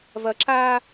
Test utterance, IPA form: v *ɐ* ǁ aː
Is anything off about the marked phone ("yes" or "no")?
no